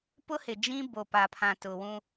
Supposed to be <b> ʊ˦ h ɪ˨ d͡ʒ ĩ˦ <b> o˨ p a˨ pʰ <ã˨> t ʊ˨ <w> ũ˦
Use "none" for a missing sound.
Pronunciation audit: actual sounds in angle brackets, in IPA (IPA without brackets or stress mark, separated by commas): p, b, ã˨, w